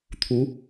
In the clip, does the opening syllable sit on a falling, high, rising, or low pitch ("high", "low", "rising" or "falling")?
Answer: rising